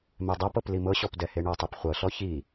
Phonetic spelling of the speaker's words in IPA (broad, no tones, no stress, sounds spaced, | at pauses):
m ɛ dˤ a p ɤ p l i m ɤ ɕ ɔ p d ɛ h e ɳ ɔ tˤ e p χʷ ɤ ɬ ɔ ç i